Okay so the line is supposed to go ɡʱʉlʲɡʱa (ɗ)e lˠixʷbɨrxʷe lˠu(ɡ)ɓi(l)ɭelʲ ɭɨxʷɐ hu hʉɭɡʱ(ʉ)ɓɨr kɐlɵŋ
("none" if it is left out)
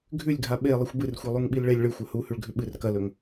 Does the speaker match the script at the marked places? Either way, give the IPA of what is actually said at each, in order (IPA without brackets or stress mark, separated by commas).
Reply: ɓ, ŋ, l, ʉ